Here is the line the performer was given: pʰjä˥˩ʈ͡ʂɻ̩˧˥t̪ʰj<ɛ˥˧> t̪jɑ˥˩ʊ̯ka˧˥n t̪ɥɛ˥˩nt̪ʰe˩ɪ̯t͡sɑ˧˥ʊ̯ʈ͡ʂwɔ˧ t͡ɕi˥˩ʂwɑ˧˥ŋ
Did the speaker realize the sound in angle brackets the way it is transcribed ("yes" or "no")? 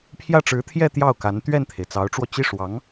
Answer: yes